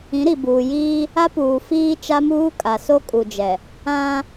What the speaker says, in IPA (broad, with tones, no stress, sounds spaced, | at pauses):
ĩ˨˦ ɾ i˨ b uː˨ j iː˦ | a˦ p uː˨ f iː˦ t͡ʃ a˦ m uː˦ kʼ a˨ s o˦ kʼ u˨ d͡ʒ ɛ˨ | ã˦